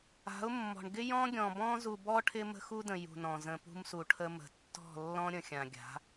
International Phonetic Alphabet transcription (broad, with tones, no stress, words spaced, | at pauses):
a̤˨˦ʊ̯mːɔ̤˨ɳ ɡɪ˦jɔ̃˦ɡʲɔ̃˨bɔ̃˦ zu˨bɔ˦ ʈʰɪ˦mə̤˦xu˦də̃˨ jṳ˨nɔ̃˨zə̃˨pṳ˦m su˨ʈʰə˦mə̤˨ tːɔ̤˦˨lːɔ̃˦ ɾʲə̃˨xʲã˨ɡʲa̤˨˦